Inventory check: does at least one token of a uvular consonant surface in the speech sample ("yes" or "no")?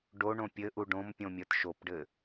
no